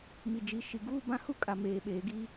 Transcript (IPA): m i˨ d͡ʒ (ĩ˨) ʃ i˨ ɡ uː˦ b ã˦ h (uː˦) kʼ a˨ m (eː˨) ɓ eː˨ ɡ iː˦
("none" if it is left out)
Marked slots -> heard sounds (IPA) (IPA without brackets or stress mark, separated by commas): i˨, u˦, eː˨